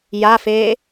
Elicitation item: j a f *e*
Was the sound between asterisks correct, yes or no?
no